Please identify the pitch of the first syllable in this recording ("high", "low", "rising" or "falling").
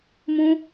high